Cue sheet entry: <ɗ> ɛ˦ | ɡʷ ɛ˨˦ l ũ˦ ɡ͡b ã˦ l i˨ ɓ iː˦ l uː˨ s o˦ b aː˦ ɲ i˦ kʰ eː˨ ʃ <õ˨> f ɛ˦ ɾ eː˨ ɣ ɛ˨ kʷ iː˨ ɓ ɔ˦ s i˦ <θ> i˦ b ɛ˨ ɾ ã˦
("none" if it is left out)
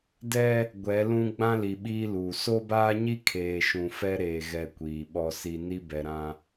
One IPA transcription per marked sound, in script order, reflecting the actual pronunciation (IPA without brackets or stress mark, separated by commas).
d, ũ˨, n